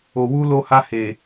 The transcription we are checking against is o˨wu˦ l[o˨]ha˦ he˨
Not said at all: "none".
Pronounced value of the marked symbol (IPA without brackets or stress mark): o˦